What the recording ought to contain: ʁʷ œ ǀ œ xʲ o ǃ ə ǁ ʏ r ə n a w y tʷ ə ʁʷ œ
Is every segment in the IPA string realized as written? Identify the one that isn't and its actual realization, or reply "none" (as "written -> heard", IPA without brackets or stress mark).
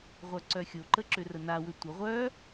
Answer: y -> ʏ